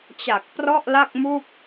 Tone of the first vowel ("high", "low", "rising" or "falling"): low